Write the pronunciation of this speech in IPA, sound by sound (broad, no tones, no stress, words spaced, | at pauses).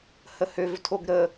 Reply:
həhøvtʰoɡ ɾə